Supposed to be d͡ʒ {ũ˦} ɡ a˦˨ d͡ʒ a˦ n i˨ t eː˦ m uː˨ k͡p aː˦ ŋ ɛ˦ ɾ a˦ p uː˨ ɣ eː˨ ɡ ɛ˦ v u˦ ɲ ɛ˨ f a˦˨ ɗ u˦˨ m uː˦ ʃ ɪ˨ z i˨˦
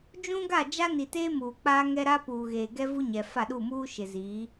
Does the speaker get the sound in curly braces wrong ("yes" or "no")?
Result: no